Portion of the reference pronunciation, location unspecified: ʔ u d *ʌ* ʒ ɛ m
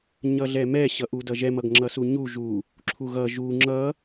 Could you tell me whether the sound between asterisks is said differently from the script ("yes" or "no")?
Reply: no